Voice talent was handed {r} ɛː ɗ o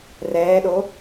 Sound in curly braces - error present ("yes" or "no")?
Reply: no